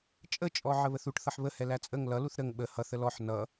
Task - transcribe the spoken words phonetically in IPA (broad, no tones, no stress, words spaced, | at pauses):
t͡ʃʼət͡ʃʼɔʕə βəθuʈ θʌħβəhɛlæ t͡sʼəŋ lʌluθ ɾəŋ ɓə hʌθ əlɔħ nʌ